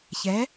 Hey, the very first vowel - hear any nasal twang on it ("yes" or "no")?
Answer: no